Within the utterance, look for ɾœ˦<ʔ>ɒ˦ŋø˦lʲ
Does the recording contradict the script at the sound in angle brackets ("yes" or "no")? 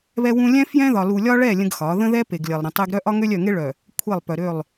no